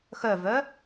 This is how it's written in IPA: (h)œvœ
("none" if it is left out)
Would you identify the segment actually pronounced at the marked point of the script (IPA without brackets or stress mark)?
x